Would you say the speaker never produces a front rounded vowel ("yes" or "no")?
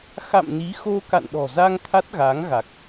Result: yes